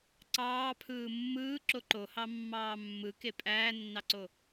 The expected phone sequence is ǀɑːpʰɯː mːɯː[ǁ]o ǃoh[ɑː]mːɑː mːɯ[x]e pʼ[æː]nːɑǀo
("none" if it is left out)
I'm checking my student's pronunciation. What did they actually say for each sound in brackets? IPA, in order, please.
ǁ, ɑ, k, æː

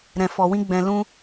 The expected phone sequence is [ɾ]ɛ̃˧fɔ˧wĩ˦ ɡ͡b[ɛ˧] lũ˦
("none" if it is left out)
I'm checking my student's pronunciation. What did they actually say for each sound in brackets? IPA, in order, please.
ɾ, ɛ̃˧

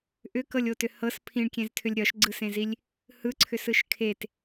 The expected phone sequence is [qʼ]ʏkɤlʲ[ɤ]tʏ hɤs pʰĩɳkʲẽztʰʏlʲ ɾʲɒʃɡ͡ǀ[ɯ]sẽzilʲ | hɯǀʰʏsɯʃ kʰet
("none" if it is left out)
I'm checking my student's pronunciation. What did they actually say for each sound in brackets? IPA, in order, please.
ʔ, o, ɯ

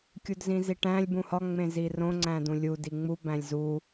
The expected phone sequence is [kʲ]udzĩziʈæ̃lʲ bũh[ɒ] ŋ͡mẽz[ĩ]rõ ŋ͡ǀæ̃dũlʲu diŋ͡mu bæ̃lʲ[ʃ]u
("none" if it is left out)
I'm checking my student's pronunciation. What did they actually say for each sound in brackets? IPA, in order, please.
kʲ, ɒ, i, z

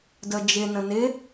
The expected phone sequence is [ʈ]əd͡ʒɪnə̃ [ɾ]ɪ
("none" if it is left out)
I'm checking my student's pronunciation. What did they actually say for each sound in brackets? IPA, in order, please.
d, n

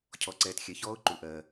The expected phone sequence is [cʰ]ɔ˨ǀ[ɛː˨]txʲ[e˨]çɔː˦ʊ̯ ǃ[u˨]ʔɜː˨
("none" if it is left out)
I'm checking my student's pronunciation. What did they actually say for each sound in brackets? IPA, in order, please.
cʰ, ɛː˨, ɛ˨, u˨

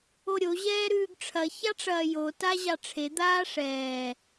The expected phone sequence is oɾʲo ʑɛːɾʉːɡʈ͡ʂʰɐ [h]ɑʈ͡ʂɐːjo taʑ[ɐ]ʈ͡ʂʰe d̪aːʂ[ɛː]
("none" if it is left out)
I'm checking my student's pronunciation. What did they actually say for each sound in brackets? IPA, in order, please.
ç, ɑ, ɛː

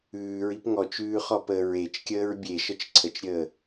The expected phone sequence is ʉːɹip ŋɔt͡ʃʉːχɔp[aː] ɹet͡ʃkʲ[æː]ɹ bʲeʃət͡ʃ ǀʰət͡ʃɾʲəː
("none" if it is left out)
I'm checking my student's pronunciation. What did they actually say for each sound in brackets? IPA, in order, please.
əː, əː

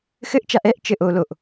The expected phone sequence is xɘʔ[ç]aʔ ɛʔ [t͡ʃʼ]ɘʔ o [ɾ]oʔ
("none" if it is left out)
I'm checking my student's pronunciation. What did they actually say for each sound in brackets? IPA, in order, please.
t͡ʃ, t͡ʃ, l

